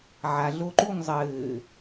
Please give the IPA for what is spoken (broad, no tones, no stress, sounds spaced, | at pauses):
ʕ a ɮ o ǃ u ŋ zˤ ɘː